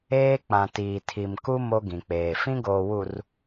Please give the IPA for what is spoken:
eː˦ k͡pã˨tiː˨ tʰi˨mku˦ mo˦ɡĩ˨k͡peː˨ fĩ˦ɡoː˨wu˨r

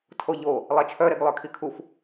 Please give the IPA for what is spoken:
tʰoʎo | lˠɛt͡ʃʰœɾeɡ lˠœkʰikʰuf

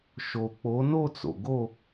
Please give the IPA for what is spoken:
ʃo˨k͡po˨˥no˥˧t͡so̰˨ ɡo˥˧

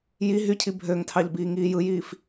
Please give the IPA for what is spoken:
ji ɦycʰi bʱøŋtʰɑʎbiː ŋiːjɯjiːf

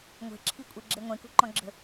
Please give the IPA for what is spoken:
ŋʷɛ̤ǁʰikʷʼeɡ͡ǁe ŋʷẽkṳǃɔ̃ɡ͡ǁə̤

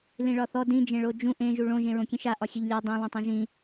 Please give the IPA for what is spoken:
lĩɭɒθɔ dĩ d͡ʒẽɭod͡ʒũ ʔẽ ʒuɭõ ʒẽɹõkʲẽʃa ʔɒxʲeʎlʲɔ dˤõ lˠõtˤãʒĩ

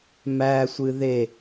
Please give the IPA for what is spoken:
mæsʷɨ ðe

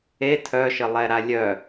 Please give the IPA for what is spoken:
e tʰœʃə lˠɛɾalʲœ

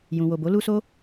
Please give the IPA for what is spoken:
jũ˨wo˨bo˨˦ lu˧so˦

